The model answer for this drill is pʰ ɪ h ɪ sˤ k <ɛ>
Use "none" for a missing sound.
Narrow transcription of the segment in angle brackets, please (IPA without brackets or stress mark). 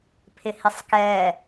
ɛ